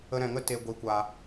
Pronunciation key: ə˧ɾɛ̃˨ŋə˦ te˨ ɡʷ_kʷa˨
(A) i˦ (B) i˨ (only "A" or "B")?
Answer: B